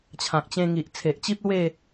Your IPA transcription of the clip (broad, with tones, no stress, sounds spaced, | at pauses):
t͡ɕʰ ã˨ k̚ t͡ɕ ẽ˧ ŋ i˨ ʔ t͡sʰ e˨ ʔ t͡ɕ i˦ p̚ l w e˥˧